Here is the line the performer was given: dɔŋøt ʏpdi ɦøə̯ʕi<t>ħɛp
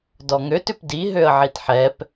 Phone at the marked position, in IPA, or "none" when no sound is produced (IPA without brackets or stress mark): t